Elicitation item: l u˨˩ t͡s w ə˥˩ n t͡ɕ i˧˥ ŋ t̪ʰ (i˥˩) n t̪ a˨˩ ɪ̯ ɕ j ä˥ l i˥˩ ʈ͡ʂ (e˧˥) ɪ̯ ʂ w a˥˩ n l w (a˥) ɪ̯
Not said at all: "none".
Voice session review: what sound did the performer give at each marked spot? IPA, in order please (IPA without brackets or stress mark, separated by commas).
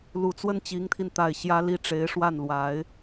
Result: i˧, e˧˥, a˧˥